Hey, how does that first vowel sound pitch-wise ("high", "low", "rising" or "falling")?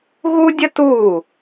high